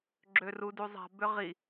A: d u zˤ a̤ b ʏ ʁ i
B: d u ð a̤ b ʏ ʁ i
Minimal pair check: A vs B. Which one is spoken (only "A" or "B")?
A